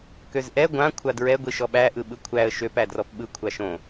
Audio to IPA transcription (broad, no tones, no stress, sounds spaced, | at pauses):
k ø z ʔ ɛ ɡʷ ã kʷʰ a d ɹ ɛ ɡʷ i ʃ ɔ ɓ æ ʔ ɯ ɓ ɯ kʷʰ æ ə̯ ʃ ø p æ d r ɔ p ɓ ɯ kʷʰ a ʃ õ